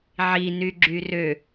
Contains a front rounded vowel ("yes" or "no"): yes